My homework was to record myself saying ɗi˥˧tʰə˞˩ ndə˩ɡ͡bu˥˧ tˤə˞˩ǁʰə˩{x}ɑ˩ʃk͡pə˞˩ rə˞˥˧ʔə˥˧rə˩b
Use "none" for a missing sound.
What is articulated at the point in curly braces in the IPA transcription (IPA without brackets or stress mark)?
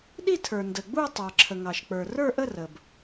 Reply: ŋ